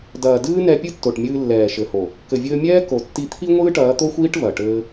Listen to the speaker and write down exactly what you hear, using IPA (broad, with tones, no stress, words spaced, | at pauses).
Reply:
dɐː˨dɨː˦nɛ˧ pʲɨ˦tːo˨ʈ mʲɨː˧lːɛː˨ʃɘ˨ho˨ | kɘ˨vʲɘː˧mʲɛː˦ ko˨tːi˧ t̪ʰi˦ ŋʷɨː˦ʈɐː˨˦t̪o˦xʷiː˦ʈ vɐ˨ʈɘː˦